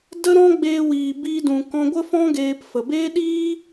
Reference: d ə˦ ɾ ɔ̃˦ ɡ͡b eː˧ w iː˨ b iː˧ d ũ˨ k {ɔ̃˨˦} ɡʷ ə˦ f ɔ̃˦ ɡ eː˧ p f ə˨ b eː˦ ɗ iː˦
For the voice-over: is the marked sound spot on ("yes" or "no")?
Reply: no